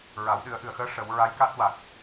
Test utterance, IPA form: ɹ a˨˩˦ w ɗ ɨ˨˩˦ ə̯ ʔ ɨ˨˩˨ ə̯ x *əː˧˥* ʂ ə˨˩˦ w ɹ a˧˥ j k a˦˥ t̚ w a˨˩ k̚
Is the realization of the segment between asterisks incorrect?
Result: no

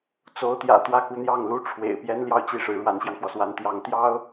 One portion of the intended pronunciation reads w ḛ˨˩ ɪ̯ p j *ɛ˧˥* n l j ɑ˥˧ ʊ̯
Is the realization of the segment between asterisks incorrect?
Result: yes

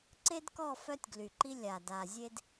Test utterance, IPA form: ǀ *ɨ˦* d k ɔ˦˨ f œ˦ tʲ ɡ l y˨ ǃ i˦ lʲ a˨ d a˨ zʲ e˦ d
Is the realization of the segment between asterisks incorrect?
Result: yes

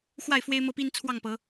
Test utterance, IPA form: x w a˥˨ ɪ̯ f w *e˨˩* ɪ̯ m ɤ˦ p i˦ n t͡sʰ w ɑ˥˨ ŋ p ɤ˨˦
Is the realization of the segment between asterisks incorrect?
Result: yes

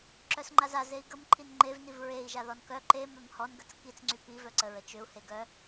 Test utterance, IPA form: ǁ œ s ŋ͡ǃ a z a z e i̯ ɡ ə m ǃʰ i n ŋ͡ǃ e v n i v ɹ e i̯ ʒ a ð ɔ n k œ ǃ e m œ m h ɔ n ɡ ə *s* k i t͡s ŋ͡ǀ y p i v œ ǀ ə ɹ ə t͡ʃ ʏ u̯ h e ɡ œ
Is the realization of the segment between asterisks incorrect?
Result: yes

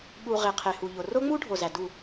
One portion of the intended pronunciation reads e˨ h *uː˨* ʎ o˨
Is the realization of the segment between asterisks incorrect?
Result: yes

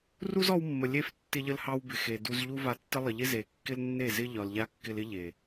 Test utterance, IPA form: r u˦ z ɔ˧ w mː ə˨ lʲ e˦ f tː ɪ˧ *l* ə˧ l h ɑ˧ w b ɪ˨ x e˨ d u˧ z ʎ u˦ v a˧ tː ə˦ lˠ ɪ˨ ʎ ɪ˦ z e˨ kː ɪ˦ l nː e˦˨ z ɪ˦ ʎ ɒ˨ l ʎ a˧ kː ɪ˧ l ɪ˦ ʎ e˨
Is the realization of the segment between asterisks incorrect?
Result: yes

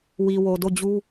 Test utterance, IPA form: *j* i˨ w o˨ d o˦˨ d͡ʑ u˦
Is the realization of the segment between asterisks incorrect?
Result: yes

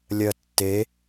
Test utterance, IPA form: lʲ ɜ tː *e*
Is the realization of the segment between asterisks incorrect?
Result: no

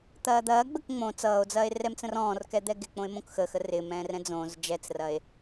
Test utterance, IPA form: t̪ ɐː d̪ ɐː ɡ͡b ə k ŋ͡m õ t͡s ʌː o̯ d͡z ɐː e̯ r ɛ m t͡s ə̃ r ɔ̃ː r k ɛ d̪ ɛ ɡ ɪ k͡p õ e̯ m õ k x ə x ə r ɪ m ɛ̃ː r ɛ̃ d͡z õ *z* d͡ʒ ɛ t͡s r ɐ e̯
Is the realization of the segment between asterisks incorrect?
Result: no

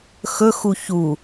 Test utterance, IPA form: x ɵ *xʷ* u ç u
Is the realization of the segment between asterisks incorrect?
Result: yes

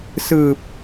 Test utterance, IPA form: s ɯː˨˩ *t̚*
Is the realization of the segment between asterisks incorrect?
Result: yes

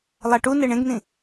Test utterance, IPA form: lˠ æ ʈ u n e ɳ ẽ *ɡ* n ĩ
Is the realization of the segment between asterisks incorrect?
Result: no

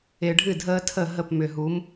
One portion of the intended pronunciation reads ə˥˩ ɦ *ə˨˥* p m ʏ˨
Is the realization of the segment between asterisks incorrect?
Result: yes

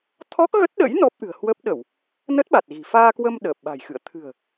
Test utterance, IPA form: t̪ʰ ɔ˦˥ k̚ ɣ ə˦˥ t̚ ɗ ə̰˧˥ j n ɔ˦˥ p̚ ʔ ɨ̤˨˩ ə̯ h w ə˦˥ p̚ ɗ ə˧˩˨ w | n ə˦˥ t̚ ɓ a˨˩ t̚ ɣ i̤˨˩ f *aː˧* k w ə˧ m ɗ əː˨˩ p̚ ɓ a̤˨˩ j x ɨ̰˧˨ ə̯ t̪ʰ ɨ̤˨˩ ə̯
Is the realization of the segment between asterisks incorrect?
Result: no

